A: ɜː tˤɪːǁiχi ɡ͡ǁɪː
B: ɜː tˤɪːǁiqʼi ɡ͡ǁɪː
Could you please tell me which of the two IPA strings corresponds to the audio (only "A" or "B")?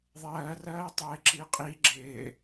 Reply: B